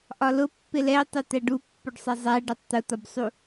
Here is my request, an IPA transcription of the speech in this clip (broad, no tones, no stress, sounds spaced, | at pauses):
ʔ ɒ l ʊ pː ɪ l ɛ y̯ tˤ u t̪ æ ɖ u pː ʊ ɖ sˤ ɛ zˤ æ ɖ ɛ tˤ t̪ ʊ t̪ ɒ b sˤ u